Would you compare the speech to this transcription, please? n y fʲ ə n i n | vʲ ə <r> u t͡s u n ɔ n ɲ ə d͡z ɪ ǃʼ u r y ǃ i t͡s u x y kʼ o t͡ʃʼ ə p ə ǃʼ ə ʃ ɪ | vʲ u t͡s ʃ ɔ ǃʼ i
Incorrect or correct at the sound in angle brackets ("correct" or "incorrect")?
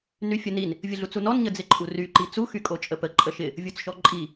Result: incorrect